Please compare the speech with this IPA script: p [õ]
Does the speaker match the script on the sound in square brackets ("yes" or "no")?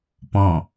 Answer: no